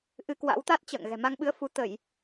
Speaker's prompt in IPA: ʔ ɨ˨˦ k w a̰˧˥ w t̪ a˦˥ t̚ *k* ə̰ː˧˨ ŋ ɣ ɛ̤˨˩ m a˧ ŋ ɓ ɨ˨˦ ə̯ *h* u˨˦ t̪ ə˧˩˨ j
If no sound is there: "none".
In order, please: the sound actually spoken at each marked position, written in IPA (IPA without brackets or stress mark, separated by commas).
t͡ɕ, f